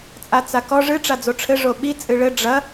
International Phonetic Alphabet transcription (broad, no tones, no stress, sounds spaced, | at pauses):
t͡sʼ a t͡s a k ɔ ʐ ɨ ʈ͡ʂ a d͡z o ʈ͡ʂʰ ɘ ʐ o ɓ i t͡sʼ ɨ ɭ ɘ ɖ͡ʐ ɐ